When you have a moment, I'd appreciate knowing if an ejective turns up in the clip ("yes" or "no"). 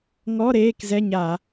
no